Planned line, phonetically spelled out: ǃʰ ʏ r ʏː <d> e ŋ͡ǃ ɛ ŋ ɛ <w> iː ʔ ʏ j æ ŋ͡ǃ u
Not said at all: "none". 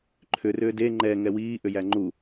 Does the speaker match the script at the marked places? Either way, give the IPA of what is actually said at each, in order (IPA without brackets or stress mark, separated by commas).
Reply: d, w